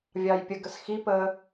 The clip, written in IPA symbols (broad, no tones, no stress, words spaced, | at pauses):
vʲɑjpʲəɡəs xipəː